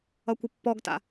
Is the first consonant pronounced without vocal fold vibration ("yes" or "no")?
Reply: yes